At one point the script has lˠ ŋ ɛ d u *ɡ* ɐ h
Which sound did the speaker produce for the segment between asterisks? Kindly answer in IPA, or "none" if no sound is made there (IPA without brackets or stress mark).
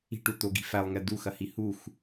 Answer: x